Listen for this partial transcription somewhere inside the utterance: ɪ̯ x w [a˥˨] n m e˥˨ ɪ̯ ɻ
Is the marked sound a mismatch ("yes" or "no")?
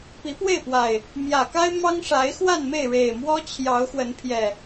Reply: no